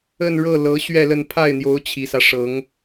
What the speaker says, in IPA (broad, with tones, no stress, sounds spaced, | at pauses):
ə˥˧ n ɻ ɤ˥˩ l ɤ˧˥ ɕ ɥ ɛ˥˧ l ə˥˧ n pʰ a˥˩ ɪ̯ n̪ j o˧˥ ʊ̯ t͡ɕʰ i˨˩ s ä˦ ʂ ɤ˧˥ ŋ